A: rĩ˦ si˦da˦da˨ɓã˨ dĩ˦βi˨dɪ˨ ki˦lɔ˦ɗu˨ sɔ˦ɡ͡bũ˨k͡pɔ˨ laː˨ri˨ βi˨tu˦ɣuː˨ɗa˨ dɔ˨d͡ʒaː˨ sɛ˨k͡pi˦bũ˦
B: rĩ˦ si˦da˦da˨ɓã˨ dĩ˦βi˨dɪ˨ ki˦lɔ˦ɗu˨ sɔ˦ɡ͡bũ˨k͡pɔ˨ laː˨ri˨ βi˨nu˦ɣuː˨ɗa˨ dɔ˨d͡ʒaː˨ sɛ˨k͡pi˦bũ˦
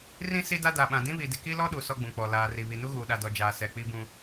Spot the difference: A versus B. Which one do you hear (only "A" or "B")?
B